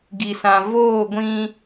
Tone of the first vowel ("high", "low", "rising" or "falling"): low